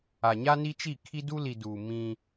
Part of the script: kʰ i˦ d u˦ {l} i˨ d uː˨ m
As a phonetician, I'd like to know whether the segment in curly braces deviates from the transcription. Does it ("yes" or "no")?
no